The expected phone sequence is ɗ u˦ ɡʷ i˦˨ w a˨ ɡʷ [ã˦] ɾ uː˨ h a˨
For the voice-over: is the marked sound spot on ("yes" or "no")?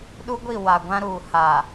yes